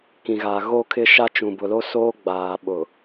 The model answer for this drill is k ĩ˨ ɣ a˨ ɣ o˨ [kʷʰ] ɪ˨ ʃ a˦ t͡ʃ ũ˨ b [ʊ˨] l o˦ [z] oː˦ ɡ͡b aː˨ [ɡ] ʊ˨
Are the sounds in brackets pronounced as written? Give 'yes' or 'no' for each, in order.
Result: no, yes, no, no

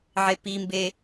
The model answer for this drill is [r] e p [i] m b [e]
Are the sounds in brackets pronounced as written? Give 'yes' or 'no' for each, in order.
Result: no, yes, yes

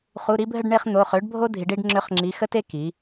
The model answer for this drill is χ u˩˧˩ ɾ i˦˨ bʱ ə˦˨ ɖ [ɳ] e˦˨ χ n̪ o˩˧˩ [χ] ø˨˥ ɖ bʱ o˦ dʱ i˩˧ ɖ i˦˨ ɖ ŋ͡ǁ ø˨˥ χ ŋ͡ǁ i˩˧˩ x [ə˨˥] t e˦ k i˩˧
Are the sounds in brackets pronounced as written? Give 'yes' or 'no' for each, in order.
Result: yes, yes, no

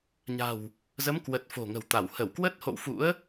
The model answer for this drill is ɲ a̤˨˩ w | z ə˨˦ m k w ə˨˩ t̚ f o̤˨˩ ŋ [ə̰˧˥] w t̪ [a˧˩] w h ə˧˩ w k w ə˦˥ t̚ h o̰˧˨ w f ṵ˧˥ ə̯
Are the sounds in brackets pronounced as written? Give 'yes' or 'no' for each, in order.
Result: no, yes

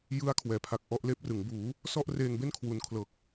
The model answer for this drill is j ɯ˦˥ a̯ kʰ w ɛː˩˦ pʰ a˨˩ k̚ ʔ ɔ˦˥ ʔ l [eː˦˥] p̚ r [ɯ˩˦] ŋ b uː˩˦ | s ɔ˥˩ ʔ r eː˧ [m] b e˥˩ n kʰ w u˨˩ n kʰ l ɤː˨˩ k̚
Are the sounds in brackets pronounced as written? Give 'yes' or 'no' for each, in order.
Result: yes, yes, no

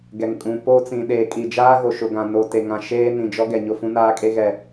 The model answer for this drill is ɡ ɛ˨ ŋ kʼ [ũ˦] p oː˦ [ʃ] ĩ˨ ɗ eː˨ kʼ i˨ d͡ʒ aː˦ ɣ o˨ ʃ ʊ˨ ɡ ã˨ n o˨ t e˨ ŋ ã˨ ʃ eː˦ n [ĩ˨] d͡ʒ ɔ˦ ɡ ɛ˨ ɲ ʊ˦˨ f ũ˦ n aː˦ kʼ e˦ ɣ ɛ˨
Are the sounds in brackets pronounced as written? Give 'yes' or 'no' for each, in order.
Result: no, no, yes

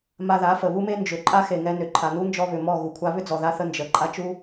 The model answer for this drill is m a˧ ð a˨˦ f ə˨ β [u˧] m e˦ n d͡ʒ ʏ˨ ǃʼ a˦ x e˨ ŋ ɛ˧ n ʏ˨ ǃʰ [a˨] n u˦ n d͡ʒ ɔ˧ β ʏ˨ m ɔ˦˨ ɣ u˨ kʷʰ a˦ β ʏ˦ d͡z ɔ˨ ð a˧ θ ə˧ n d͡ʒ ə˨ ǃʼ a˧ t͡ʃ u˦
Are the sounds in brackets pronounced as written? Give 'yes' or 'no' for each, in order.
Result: no, yes

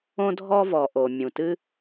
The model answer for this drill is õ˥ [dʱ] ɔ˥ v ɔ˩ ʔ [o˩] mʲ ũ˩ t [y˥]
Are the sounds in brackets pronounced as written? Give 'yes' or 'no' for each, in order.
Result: yes, yes, no

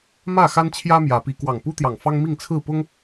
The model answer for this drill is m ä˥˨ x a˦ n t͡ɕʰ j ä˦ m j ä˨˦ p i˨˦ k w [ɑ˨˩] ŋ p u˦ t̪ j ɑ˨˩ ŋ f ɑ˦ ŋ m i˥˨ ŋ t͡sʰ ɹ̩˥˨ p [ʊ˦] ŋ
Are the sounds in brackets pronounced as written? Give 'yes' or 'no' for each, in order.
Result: yes, yes

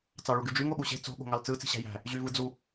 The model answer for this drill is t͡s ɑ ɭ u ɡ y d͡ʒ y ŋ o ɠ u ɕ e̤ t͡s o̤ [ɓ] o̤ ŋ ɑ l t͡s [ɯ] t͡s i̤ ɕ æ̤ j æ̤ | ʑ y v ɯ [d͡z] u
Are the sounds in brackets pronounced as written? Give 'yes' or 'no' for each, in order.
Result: no, yes, yes

